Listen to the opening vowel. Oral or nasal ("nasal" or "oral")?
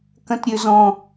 nasal